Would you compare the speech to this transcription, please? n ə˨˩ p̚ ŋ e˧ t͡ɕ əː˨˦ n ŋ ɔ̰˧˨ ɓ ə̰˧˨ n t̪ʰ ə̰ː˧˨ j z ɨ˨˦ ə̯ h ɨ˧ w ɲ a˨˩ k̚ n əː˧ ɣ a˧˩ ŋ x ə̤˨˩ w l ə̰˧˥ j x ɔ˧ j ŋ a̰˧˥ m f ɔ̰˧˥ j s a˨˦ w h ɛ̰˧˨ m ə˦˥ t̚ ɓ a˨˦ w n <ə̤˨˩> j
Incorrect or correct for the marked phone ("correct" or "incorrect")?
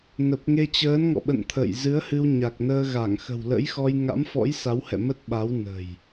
correct